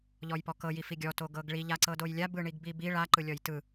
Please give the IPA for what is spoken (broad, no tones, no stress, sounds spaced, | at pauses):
ʎ ɔ j p ɔ k ɤ j i f i ɡʲ ɔ t o ɡ ɤ ɡ ɭ i ʎ a ǀ ɤ d o j lʲ a b ɯ ɳ i ɡ b i b i ɭ a ǃ ɯ lʲ ɔ j t ɯ